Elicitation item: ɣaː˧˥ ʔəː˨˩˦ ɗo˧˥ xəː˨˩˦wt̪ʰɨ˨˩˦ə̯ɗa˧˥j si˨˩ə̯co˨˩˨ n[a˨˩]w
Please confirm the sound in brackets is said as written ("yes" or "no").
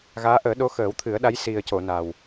yes